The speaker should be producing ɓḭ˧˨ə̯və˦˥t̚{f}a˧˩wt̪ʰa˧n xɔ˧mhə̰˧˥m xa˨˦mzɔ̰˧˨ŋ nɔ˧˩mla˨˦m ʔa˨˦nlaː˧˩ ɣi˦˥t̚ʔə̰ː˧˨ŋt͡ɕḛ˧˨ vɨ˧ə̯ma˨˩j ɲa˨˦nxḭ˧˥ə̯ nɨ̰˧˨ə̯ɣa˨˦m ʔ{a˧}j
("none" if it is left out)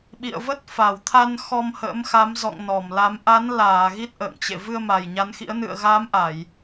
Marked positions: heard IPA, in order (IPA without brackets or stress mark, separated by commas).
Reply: f, a˧˩˨